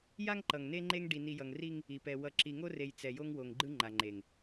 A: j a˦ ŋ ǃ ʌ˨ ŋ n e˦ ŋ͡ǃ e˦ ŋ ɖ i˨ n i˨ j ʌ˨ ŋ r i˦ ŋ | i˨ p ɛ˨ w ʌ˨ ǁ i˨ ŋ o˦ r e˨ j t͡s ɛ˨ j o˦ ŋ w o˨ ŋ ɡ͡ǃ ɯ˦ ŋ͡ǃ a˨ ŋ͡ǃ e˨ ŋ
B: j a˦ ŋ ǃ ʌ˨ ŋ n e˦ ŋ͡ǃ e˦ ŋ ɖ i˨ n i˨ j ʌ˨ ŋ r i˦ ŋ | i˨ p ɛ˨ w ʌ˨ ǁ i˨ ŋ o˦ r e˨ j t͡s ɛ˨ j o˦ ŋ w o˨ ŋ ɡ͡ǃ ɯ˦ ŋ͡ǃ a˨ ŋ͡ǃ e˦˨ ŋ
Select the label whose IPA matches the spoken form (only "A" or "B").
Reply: A